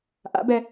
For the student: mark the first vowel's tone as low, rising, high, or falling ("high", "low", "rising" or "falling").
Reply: rising